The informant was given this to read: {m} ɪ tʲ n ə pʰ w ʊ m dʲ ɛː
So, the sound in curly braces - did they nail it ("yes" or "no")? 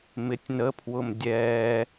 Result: yes